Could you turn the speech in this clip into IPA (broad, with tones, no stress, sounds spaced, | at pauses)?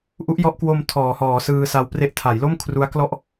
ʔ u˦˥ ʔ j ɔ˦˥ ʔ k w o˧ m tʰ ɔː˩˦ h ɔː˩˦ s ɯː˧ s a˧ w p r e˥˩ ʔ tʰ a˩˦ j l o˥˩ m kʰ r u˦˥ a̯ k l ɔ˥˩ ʔ